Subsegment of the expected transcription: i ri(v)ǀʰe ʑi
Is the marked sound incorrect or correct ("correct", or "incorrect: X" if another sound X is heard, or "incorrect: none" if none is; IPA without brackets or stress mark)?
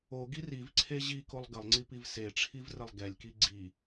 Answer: correct